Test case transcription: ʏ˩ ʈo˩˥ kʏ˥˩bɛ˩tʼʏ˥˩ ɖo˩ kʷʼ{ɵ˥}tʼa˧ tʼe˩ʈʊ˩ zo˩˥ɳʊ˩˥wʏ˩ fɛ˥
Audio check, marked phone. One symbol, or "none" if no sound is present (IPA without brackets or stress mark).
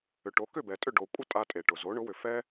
ə˥